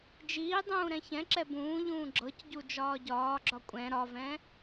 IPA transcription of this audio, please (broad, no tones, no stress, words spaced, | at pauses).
d͡ʒiːdˤũː ɾɛ̃çɛ̃ǁɛ bũːʎũː ɡ͡ǁɤcɟu d͡ʒɒːɟɒːɡ͡ǁɒ kʷʼɛ̃ ɾɒvɛ̃